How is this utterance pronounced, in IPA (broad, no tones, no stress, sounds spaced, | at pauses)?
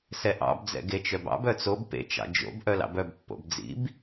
s ɛ ʔ ɑ̰ b d͡z ɛ̰ ɡ e t͡ʃ œ b ɑ̰ b œ t͡s o b p ḛ t͡ʃ ɑ̰ d͡ʒ o̰ b ʔ œ l ɑ̰ b œ b pː o̰ b d͡z ḭ b